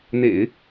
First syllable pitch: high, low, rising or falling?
low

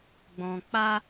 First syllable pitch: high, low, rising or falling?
low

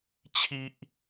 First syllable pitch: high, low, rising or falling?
low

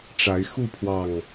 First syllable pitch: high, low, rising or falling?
rising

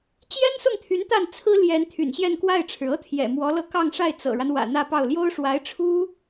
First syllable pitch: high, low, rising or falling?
high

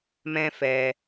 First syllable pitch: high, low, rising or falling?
high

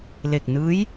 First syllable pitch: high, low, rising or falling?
low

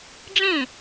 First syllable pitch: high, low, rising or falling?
falling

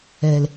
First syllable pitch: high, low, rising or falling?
low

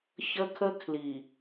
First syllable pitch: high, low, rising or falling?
high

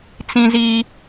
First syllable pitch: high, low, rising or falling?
high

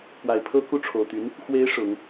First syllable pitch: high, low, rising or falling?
low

